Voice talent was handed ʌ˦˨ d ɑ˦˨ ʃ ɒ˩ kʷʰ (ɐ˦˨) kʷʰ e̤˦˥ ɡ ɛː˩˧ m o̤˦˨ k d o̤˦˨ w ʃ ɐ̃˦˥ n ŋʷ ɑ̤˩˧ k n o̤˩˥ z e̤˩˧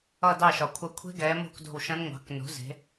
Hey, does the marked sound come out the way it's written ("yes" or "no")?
yes